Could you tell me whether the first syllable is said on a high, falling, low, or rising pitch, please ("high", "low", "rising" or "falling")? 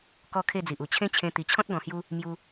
falling